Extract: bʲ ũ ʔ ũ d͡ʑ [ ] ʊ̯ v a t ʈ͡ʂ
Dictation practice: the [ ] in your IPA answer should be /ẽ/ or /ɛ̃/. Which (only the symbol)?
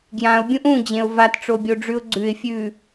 ẽ